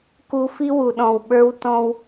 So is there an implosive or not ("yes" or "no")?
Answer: yes